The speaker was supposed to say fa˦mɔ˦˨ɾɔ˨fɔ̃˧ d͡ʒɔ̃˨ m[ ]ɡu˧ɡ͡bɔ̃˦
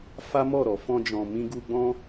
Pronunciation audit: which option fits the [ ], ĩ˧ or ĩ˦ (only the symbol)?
ĩ˧